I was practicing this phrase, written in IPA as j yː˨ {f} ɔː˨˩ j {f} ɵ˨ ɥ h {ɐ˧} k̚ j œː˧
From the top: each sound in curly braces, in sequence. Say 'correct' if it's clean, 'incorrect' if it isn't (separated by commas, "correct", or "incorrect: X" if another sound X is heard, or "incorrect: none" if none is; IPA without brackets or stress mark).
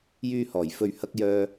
incorrect: h, correct, correct